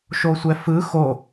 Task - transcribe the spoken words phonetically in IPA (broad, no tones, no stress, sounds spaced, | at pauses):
ʃ o sʷ ɛ f ɯ x o